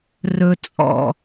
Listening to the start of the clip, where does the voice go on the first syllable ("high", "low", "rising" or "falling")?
low